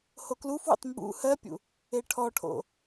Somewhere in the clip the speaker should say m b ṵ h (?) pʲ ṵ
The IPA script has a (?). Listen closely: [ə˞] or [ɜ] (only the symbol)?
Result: ɜ